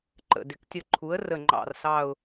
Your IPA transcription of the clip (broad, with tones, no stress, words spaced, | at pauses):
ǃə̰˧˩ dɪ˩˥ktʲə˧˩ ǃʰu˩˥ə̯ rə˧˩ŋ͡ǃɑ̰˧˩r sɑ˧˩ʊ̯